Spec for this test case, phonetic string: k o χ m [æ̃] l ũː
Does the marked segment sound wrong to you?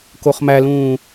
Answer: yes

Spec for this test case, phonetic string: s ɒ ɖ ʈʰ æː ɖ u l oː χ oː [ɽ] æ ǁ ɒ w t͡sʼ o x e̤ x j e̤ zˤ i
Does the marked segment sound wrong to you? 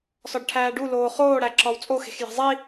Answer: no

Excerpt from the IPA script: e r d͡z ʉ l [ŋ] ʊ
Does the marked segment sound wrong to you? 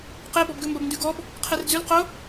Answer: yes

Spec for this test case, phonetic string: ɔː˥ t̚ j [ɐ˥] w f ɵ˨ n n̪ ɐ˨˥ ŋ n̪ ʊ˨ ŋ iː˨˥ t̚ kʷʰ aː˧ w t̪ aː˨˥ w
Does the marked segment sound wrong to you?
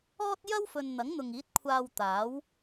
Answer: no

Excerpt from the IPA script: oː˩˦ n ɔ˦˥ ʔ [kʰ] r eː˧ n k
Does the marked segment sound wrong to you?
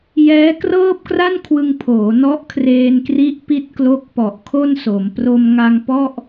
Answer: no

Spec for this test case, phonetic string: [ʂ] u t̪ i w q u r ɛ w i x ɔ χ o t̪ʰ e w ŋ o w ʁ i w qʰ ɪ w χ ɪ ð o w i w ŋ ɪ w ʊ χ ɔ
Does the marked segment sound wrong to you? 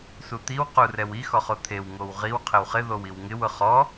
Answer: yes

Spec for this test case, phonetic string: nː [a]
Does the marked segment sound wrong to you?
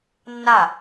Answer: no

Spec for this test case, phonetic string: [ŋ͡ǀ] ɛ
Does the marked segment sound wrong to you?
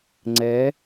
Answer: no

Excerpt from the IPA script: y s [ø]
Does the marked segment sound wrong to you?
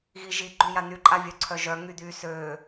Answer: no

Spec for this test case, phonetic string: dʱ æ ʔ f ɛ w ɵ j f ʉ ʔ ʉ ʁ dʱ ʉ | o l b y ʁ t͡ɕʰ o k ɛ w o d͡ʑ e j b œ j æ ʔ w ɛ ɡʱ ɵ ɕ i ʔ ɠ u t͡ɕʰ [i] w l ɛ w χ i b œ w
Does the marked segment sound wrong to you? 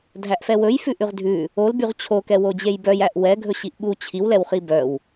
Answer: no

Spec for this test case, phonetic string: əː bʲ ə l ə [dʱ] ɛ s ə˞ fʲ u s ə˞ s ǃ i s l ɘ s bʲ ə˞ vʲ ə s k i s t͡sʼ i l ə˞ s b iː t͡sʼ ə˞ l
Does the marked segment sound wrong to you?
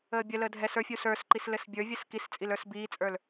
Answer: no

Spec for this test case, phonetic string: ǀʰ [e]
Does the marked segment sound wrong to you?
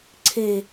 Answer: no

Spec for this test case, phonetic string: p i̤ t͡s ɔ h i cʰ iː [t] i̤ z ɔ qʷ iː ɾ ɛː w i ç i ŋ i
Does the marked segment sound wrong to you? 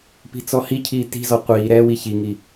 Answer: no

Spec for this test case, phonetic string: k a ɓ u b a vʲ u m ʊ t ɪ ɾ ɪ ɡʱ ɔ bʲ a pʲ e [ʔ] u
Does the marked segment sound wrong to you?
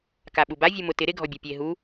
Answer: yes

